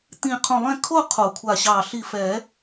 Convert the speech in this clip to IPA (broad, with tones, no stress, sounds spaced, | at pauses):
t̪ ĩ˧˩ qʰ õ˧˩ lˠ ɛ̃˥˧ kʰ o˥˧ qʰ o˨˩˦ kʷʰ a˧˩ ɕ ɑ˧˩ ɬ i˧˩ f ɛ˨˩˦